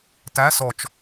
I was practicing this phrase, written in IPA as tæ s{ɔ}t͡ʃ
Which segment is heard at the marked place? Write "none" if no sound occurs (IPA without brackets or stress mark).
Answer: ɔ